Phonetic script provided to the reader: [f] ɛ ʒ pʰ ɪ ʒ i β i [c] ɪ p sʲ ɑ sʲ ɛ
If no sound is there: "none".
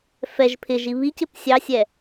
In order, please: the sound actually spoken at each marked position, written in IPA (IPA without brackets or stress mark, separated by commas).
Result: f, c